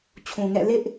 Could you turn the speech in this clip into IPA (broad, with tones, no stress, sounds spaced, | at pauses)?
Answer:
t͡ɕʰ ũ˨ ŋ ɛ̰˦˨ l ɪ˦ ʔ